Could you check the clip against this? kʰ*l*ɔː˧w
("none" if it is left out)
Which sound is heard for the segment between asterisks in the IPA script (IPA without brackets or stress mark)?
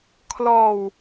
l